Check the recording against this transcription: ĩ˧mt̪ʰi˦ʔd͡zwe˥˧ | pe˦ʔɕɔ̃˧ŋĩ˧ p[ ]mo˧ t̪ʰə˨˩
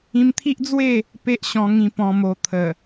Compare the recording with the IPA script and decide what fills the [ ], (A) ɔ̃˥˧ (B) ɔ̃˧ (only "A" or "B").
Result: B